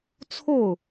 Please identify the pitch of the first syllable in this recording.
falling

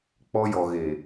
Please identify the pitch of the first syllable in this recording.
high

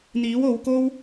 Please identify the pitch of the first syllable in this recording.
rising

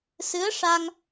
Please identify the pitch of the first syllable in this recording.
rising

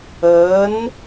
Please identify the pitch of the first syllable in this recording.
rising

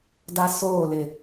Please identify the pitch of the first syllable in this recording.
high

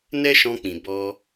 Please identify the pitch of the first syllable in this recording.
high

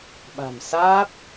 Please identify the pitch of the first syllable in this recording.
low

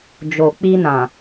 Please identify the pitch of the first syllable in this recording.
low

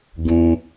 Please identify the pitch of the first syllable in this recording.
low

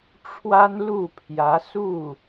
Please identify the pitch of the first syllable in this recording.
high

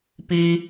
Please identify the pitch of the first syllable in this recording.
high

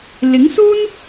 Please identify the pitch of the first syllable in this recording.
rising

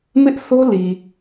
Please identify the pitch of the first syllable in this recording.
high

